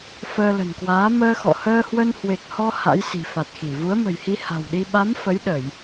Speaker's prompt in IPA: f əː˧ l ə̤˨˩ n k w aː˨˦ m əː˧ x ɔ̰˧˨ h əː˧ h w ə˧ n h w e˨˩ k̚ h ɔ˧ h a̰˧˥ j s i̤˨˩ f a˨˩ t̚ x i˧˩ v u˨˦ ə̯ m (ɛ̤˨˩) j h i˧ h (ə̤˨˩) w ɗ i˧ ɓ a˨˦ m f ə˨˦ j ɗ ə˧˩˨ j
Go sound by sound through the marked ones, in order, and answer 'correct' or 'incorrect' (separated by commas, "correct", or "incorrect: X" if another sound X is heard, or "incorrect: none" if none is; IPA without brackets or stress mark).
incorrect: ə̤˨˩, incorrect: a̤˨˩